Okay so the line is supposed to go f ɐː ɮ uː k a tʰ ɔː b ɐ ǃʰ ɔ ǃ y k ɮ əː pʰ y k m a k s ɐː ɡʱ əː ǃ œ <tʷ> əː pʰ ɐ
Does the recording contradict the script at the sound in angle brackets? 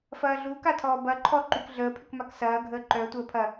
no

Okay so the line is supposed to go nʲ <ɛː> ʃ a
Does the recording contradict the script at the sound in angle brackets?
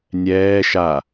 no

